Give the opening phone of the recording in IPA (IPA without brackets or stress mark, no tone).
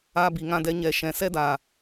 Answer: a